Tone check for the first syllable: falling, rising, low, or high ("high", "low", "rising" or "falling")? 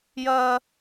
high